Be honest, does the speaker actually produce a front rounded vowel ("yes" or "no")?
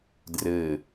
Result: no